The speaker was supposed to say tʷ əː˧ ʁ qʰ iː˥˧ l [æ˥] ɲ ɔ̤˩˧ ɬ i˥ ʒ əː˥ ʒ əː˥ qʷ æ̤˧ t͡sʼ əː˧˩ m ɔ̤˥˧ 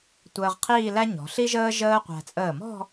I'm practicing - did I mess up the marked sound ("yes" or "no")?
no